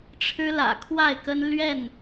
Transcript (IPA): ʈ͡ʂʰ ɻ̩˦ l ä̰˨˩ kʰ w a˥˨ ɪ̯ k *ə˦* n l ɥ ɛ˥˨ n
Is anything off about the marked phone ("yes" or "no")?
no